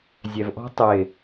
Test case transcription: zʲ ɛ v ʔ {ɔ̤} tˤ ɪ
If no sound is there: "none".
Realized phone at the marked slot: ɔ̤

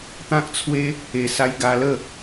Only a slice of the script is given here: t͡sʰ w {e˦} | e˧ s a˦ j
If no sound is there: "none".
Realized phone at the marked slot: e˦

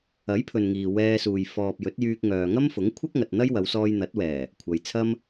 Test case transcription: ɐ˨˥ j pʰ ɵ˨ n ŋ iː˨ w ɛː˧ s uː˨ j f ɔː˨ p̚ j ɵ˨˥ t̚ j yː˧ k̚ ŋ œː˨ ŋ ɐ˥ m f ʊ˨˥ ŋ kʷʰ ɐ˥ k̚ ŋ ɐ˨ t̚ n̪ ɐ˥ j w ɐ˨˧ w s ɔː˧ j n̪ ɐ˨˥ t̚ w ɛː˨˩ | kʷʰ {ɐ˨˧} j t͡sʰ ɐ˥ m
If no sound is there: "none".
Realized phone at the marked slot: ɐ˨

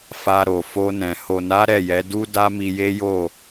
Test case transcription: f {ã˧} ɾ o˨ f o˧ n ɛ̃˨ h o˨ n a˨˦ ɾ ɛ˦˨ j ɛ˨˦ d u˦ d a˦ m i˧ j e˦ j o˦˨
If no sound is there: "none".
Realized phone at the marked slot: a˧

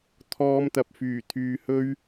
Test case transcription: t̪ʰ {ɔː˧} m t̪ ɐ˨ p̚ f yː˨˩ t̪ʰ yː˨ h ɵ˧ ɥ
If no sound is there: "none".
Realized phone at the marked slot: ɔː˧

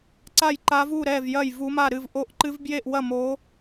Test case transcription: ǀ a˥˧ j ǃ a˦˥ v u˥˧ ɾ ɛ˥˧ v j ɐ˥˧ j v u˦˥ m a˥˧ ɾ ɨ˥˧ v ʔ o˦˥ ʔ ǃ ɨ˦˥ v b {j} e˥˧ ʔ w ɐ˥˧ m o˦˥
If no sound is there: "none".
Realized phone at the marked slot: j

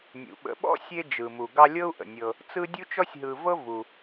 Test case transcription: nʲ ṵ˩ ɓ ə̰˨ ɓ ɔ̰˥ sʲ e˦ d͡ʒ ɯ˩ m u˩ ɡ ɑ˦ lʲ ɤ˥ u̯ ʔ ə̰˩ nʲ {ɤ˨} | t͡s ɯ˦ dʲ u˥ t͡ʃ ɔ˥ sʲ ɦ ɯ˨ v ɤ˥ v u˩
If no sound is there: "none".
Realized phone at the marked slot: ɤ˨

